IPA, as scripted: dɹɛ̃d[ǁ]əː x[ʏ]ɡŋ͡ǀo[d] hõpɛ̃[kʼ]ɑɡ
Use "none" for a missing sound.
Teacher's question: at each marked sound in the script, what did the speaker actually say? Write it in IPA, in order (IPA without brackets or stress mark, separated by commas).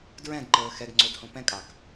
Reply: ǃ, ɛ, d, kʼ